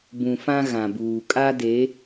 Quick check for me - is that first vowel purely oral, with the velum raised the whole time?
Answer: no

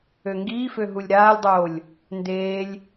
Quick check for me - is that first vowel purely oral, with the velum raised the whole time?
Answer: yes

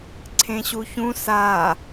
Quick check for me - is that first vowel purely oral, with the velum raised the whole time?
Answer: no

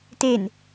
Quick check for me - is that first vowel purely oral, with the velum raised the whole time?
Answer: yes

